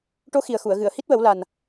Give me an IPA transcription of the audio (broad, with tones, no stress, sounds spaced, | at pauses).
ʈ o˧˥ x i˨˩ ə̯ x u˨˩˨ ə̯ ɣ ɨ˨˩˨ ə̯ h i˦˥ t̚ w ə˨˩˦ w l a˨˩ n